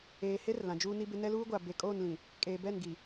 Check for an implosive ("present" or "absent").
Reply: absent